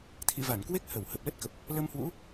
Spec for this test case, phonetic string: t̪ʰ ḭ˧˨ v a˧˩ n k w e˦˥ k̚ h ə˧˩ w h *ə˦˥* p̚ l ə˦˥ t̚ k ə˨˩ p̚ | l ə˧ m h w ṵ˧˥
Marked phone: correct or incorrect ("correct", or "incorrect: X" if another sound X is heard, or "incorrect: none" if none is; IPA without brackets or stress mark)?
incorrect: ə˨˩